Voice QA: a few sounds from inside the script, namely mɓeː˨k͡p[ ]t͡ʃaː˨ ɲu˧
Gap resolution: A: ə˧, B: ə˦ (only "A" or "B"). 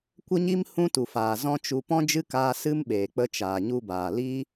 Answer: A